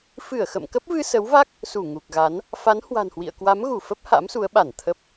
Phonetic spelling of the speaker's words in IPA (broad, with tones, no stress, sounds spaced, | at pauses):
f ɨ˧˩ ə̯ x ə̰˧˨ m k ə˦˥ p̚ v ɨ˧ s ə˨˦ w v a˦˥ k̚ | s u˧˩ ŋ u˨˩ k̚ ɣ a˨˦ n | f a˨˦ n h w a̤˨˩ n h w ḭ˧˨ ə̯ k w a˨˦ m ɣ u˧˩ f ə˦˥ p̚ h a̰˧˥ m s u˨˦ ə̯ ɓ a˧˩ n t̪ʰ ə˦˥ p̚